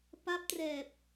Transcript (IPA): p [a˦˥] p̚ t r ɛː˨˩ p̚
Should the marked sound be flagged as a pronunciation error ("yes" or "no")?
no